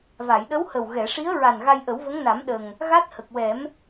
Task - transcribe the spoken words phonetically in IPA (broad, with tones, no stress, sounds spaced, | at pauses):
v a˨˩˨ j ɗ ə˧˥ w h ə˨˩ w ɣ ɛ˨˩˨ ʂ i˧˥ ə̯ ɹ a˨˩ n ɣ a˧ j ʔ ə˨˩˦ w v ə˧˥ ŋ n a˨˩˦ m ɗ ə˨˩ ŋ | ɣ a˦˥ t̚ h ə˨˩ k̚ w ɛ˨˩˦ m